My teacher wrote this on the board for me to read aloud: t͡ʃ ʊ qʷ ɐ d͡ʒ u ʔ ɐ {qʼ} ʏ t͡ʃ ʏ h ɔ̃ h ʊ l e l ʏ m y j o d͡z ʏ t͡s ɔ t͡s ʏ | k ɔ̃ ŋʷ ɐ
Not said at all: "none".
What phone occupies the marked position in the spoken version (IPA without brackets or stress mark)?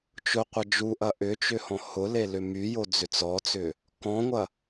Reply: ʔ